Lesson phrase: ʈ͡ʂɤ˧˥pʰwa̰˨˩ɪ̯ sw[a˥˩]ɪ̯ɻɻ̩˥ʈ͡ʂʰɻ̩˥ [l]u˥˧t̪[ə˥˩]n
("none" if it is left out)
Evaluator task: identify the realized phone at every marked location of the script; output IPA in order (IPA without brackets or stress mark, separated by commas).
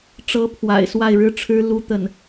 a˥˩, l, ə˥˩